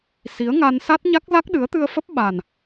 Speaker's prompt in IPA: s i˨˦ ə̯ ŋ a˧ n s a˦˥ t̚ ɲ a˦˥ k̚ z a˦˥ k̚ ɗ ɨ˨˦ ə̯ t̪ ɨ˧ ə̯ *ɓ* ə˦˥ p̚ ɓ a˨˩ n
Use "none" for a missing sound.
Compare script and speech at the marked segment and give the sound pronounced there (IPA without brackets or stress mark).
f